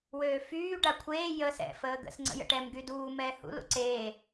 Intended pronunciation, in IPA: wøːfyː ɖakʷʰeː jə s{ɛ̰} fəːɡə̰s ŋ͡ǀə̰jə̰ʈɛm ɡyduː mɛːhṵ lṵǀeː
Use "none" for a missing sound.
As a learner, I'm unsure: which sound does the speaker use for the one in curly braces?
ɛ̰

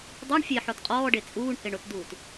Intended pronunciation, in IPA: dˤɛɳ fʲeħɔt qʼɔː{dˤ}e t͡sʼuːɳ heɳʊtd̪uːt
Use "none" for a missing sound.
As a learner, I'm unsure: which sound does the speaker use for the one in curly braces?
ɖ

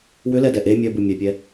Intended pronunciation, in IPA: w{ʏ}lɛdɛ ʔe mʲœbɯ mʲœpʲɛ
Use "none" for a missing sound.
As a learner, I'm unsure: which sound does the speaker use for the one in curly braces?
ʏ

